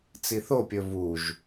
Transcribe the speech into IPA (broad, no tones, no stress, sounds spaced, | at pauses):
t͡s i θ o pʲ ɵ v u ʒ